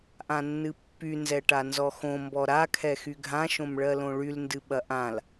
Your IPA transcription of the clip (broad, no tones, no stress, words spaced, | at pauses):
ʔãnːɨpːy nzɛʈanzɔxõ mbɔɾa kʰɛxyɡʱã ʃõmɭɜlõɭyl ndɨɓɐʔãl